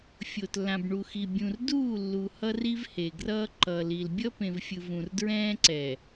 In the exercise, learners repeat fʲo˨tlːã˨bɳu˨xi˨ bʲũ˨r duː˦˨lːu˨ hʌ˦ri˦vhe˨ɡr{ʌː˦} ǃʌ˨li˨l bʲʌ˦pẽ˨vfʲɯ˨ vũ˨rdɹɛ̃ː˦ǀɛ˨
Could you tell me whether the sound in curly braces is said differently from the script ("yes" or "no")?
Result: no